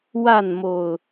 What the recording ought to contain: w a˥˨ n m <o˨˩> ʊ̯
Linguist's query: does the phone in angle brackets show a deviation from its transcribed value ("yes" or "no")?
no